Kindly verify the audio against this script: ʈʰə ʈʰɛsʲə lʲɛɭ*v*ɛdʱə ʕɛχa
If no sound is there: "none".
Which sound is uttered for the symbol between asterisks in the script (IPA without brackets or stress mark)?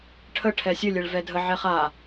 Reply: v